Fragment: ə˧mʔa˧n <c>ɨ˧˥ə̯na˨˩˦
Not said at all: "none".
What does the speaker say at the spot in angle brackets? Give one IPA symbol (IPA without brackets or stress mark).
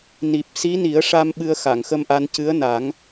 c